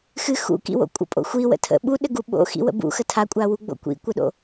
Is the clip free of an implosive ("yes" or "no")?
no